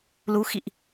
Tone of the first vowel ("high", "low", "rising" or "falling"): rising